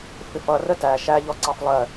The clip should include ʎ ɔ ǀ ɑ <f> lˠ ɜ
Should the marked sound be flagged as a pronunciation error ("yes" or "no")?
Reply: no